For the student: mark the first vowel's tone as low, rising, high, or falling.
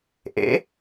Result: rising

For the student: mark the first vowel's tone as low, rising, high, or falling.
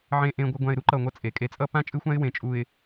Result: low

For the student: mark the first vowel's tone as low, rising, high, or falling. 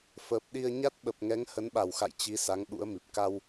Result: low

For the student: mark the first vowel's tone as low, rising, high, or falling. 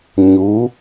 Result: rising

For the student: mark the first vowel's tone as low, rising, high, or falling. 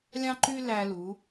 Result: high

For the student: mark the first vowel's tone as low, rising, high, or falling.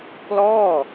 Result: falling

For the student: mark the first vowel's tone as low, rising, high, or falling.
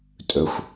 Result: low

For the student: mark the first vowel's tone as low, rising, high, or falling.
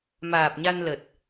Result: low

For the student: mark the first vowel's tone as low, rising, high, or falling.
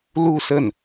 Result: falling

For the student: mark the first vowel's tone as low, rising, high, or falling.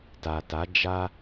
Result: low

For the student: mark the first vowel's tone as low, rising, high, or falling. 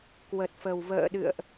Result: low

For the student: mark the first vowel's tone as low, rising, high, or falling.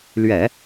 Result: low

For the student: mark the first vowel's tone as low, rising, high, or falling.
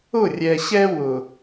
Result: falling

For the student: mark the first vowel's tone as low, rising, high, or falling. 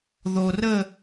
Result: low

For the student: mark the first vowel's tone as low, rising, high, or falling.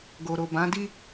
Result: low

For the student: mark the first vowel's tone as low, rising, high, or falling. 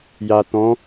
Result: low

